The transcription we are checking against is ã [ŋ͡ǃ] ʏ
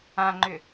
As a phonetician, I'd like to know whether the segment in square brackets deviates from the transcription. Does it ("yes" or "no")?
no